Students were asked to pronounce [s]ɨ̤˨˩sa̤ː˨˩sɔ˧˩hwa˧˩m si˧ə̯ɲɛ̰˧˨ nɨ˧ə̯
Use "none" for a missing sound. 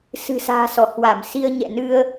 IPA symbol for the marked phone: s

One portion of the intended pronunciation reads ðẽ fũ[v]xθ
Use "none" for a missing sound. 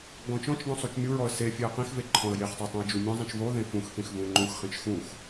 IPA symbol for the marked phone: none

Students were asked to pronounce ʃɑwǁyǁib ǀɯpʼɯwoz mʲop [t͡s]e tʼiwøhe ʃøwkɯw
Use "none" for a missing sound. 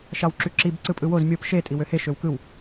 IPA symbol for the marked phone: ʃ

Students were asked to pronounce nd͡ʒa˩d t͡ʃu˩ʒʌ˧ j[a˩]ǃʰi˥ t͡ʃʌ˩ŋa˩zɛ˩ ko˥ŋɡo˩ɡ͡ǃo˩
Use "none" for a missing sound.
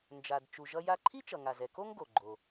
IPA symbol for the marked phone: a˧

